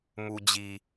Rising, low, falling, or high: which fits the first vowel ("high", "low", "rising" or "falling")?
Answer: low